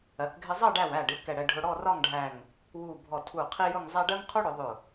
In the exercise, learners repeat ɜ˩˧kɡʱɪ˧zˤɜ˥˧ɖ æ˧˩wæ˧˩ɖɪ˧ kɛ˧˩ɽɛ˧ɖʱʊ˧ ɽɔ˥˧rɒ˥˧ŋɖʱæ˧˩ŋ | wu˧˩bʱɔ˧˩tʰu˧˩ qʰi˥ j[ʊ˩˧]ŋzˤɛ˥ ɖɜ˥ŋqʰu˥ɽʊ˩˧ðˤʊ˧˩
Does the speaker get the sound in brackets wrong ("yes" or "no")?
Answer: yes